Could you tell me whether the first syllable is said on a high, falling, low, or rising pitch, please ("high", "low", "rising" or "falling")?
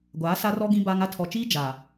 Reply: rising